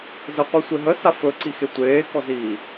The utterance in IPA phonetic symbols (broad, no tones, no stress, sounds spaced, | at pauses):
z ə qʷ i sʷ e ɦ ə s a f ɵ ǀ i x e tʷ eː k ɔ z iː